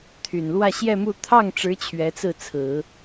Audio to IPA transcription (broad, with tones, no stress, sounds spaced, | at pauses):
t̪ʰ y˨˩ n l w ä˥˧ ɕ j ɛ˥˧ m u˥˧ t̪ʰ ɑ˥˩ ŋ ʈ͡ʂ ɻ̩˧˥ t͡ɕʰ ɥ ɛ˧˥ t͡s ɹ̩˥˩ t͡sʰ ɹ̩˨˩˦